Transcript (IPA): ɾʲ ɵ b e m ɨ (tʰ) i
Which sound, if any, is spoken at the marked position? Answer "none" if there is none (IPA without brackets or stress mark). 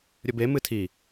tʰ